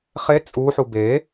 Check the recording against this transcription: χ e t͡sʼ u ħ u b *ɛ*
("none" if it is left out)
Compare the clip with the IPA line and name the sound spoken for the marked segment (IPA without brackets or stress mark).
e